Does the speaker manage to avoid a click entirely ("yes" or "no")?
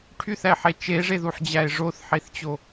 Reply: yes